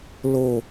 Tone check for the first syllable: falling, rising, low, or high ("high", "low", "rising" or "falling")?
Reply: low